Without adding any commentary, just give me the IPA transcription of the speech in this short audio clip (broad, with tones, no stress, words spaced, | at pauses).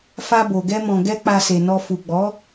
fa˧bo˨ɡɛ˧ mɔ̃˨ɡɛ˧ k͡pa˧se˨nɔ˧ fu˨ ɡ͡bɔ˨˦